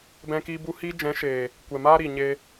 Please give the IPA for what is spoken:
b ɛ̃˧ k i˧ b u˧ h i˧ d͡ʒ ɛ̃˨˦ ʃ eː˨ | kʷ ɛ˨ m aː˦ ɾ i˨ ɲ e˧

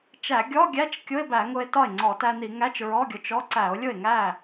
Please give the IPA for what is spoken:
t͡ʃ æ˧˩˧ ɡʲ ɔ˧˥˧ ɡʲ æ˧˥˧ t͡ʃ kʲ ʊ˧˥˧ e̯ b æ˧˩˧ ŋ ʊ˧ e̯ t ɒ˥˩ e̯ ŋ͡ǀ ɔ˧˩˧ t æ˧ n i˧˩˧ ŋ æ˧˥˧ t͡ʃ ɹ ɔ˧˥˧ ɡʲ ʊ˧ t͡ʃ ɔ˧˥˧ ǀ æ˧˩˧ o̯ lʲ ʊ˥˩ e̯ ŋ æ˥˩

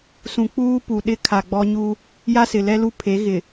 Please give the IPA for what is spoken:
s ũ˨ k͡p uː˦ p u˨ ɗ ɪ˦ kʰ a˨ ɡ͡b ɔ˦ ɲ u˦ | j a˦ s ɪ˨ l ɛ˦ l u˦ pʰ e˨˦ ɣ ɪ˨

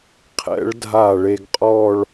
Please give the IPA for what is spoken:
qʰ ɛ̰˩˧ ɭ dʱ a˧˩ ɭ e˧ ɡ qʼ ɔː˥˧ ɭ

